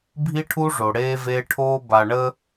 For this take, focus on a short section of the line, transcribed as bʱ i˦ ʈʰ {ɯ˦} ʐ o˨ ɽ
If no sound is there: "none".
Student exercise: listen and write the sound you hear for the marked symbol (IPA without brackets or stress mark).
u˦